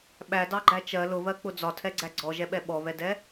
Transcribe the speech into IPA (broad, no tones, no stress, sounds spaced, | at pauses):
ɓ æ d ɑ ɡ͡ǃ æ t͡ʃ ɜ l ʊ β ɜ k͡p ʊ d͡z ɒ tʰ ɛ ɡ͡ǀ æ ɡ͡ǀ ɔ ʒ ɛ ɓ ɛ ɓ ɔ β ɛ d ɛ